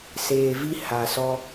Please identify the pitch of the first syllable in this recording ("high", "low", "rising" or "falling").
low